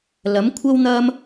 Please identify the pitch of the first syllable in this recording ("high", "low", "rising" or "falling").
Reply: rising